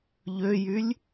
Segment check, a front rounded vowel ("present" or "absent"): present